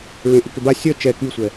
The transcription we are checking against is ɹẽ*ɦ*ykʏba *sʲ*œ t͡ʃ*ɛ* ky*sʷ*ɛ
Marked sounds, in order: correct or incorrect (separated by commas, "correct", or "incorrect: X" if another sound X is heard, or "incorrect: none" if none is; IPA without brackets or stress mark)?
incorrect: ʔ, correct, correct, correct